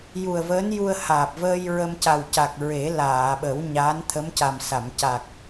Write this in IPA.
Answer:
j u˨˩ ə̯ v əː˧˥ n j u˧ ə̯ h aː˨˩ p̚ v əː˧ j ɹ ə˧ m c a˨˩ w c a˨˩ k̚ ɹ e˨˩˦ l aː˨˩˨ ɓ ə˨˩˦ w ɲ a˧˥ n t̪ʰ ə˧˥ m c a˨˩ m s a˨˩˨ m c a˨˩ k̚

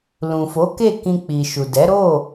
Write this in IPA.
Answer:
l ũ˨ f o˨˦ k e˦˨ k ĩ˧ k͡p i˨ ʃ u˨ d ɛ˨˦ ɾ o˦˨

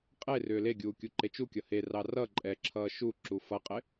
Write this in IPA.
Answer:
qʼ e r ʏː l e ɡʲ uː kʲ u ǃ e t͡ʃ u kʲ ʌ h e r ɑ r ʌ ǃʼ ɛ ǁʰ ʌː ʃ u ǁ u f ʌ qʼ ɪ

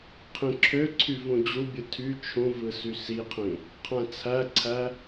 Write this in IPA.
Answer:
qʰ ĩ ǁʰ ø ǀʰ y v ũ d͡ʑ u bʲ ɯ tʰ y t͡ʃʰ ũ v ɯ s y s i qʰ ĩ | qʰ æ̃ t͡sʰ æ ǀʰ æ

